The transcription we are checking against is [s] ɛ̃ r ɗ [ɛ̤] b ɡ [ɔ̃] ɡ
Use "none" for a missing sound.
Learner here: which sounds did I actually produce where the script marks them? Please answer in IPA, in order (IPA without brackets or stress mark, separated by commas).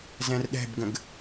z, ɛ̤, ə̃